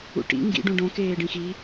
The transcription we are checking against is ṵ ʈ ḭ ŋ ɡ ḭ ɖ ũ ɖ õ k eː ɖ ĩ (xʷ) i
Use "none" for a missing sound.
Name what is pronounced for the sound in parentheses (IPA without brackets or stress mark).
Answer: x